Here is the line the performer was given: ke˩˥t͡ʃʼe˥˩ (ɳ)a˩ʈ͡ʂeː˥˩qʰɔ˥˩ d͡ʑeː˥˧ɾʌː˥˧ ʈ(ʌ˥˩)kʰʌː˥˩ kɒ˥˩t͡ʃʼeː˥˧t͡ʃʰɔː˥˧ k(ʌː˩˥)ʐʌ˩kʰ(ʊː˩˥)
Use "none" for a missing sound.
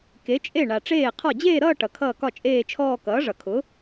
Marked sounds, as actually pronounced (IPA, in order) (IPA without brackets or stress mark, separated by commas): ɳ, ʌ˩, ʌː˩˥, ʊ˩˥